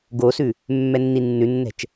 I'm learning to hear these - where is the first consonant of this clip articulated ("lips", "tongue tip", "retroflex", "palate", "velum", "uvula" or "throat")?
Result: velum